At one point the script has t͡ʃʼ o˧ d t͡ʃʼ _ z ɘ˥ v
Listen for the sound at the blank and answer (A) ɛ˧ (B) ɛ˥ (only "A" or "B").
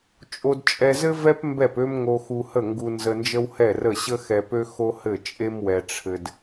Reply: A